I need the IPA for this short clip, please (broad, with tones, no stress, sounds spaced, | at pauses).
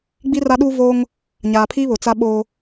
ɡ͡b i˦ r a˦ ɗ uː˦ v oː˦ ŋ | ɲ aː˨ pʰ iː˦ β ʊ˨ t͡s a˦ ɓ oː˦